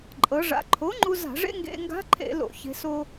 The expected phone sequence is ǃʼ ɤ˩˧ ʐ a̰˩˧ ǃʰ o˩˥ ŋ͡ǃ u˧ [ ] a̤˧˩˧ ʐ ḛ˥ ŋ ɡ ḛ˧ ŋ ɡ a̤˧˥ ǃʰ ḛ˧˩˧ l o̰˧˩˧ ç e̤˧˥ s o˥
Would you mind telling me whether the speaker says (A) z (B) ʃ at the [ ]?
A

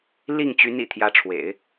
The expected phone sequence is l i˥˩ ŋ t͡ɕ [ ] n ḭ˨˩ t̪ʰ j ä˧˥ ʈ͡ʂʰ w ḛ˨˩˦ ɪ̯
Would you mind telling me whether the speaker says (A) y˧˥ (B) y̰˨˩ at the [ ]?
A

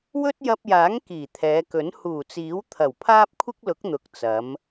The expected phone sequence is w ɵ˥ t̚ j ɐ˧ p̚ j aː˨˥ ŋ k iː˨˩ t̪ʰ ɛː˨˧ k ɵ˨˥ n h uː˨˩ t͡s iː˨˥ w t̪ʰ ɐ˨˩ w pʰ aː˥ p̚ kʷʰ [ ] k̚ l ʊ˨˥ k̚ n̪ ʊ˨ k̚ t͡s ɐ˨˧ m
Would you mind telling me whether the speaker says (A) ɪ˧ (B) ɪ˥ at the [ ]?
B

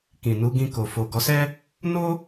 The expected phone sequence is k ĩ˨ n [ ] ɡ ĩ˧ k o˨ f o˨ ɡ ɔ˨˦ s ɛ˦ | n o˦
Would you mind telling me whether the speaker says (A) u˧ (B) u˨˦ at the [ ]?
B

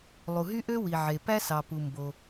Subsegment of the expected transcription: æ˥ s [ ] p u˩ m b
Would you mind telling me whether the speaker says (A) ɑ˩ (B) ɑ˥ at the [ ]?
A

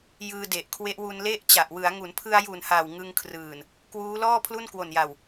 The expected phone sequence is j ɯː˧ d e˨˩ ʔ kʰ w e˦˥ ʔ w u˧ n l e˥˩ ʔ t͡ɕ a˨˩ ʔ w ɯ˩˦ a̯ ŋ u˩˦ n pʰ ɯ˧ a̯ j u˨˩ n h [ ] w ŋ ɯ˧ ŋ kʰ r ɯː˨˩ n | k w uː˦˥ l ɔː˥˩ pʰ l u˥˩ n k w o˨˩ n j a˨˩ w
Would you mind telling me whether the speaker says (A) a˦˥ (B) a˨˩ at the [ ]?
B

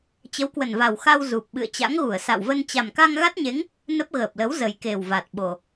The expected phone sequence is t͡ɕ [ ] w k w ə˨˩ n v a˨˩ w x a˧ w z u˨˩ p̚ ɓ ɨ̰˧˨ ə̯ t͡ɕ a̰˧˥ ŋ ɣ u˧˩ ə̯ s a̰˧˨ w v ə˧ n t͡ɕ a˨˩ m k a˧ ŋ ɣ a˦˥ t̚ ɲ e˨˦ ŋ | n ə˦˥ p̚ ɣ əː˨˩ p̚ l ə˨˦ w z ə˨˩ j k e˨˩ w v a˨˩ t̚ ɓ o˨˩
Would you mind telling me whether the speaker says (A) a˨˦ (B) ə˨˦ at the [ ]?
B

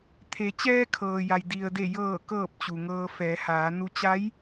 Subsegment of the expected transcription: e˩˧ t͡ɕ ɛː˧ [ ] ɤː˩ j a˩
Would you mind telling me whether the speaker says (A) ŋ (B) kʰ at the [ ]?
B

